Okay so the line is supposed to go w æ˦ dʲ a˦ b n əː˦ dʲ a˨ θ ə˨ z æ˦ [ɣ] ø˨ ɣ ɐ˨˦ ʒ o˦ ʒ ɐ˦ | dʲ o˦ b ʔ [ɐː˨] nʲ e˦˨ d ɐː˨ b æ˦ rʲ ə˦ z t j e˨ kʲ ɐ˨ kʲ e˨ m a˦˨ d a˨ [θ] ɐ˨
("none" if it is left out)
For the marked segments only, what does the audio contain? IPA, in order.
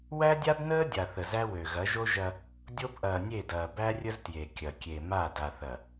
w, ɐː˨, θ

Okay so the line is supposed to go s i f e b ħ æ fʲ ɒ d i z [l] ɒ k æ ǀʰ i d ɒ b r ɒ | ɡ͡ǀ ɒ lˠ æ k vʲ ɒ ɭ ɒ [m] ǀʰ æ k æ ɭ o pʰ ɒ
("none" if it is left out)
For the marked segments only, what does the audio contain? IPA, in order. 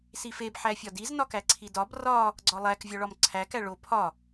n, m

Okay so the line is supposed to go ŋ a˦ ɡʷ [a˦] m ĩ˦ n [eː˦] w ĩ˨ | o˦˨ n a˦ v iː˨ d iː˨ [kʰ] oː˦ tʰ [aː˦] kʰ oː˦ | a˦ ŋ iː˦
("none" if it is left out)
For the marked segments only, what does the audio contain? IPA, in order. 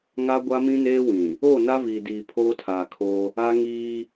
a˦, eː˦, pʰ, aː˨

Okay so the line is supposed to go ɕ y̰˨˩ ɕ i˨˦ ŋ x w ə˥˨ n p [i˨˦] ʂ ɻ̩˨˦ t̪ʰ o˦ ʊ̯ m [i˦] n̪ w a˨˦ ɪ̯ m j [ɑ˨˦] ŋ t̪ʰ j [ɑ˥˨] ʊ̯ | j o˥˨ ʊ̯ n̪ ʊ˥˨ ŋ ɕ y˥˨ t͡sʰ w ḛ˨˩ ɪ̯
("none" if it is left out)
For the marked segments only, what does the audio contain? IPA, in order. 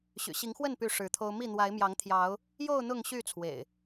y˨˦, i˥˨, ɑ˨˦, ɑ˨˦

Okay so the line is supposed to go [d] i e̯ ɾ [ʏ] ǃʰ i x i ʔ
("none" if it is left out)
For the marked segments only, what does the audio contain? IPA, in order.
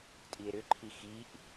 tʼ, ʏ

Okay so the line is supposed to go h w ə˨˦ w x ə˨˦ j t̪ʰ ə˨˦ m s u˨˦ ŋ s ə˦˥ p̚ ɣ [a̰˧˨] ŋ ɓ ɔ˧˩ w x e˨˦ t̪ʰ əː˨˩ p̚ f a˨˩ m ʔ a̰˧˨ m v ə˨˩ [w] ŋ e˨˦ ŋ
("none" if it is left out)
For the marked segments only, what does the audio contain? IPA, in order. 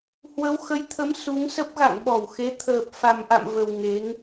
a̰˧˨, w

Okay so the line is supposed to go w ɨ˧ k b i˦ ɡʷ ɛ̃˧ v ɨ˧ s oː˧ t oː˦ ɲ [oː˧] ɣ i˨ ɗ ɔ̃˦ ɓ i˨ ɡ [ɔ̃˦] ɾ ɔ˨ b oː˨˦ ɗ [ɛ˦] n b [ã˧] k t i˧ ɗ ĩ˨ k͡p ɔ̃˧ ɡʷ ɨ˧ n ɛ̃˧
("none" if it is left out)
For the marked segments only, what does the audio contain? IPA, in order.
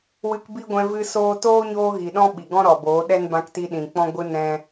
oː˧, ɔ̃˦, ɛ˦, ã˧

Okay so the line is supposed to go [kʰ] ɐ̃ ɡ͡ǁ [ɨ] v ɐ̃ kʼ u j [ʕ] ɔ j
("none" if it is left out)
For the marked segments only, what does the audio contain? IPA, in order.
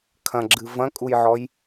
kʰ, ɨ, ʕ

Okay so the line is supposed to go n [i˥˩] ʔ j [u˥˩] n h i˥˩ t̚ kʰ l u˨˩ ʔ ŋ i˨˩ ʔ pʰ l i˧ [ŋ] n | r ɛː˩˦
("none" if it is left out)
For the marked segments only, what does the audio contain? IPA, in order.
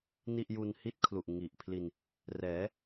i˥˩, u˧, none

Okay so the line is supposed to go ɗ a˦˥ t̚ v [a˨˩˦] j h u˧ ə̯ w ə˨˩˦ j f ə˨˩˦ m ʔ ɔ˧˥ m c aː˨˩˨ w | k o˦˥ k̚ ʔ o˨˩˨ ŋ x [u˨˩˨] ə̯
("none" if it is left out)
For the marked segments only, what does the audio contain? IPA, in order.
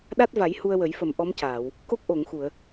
a˨˩˦, u˨˩˨

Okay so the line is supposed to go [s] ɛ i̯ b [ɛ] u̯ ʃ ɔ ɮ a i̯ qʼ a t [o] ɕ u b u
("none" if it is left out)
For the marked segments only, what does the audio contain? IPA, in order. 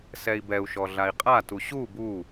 s, ɛ, u

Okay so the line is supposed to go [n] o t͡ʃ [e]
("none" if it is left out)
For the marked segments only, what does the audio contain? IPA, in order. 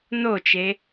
n, e

